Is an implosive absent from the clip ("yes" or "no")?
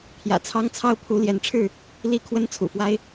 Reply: yes